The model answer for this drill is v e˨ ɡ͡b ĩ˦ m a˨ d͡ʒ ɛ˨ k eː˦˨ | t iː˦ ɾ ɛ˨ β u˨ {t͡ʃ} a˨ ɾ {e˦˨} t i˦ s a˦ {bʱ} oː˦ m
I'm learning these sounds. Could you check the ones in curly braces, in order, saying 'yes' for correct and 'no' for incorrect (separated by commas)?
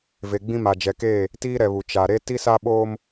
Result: yes, no, no